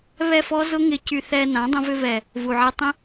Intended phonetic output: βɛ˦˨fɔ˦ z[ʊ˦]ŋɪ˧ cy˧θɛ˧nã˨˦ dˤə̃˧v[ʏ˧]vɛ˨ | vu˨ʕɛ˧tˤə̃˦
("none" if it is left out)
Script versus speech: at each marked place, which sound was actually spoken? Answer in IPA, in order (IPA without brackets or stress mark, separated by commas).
ʊ˦, ʏ˧